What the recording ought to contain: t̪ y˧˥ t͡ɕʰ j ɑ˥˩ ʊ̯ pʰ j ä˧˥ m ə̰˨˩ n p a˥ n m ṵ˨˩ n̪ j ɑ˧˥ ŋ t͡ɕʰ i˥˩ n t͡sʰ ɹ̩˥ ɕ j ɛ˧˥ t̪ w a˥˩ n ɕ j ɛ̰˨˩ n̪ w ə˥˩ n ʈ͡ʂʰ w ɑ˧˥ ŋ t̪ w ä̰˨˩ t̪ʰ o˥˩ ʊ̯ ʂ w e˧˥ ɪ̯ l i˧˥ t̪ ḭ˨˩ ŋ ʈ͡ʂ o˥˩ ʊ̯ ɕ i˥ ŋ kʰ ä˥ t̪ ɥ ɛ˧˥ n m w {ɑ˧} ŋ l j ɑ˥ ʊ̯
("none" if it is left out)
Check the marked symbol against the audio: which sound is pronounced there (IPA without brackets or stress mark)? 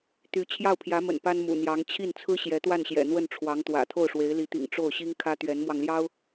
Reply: ɑ˧